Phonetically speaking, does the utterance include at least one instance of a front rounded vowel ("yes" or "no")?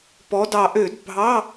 yes